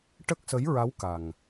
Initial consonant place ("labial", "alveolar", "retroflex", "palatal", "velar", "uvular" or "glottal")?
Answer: retroflex